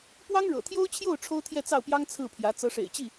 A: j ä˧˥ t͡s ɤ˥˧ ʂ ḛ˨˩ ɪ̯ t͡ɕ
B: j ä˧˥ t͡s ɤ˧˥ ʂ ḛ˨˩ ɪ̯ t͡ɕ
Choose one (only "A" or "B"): B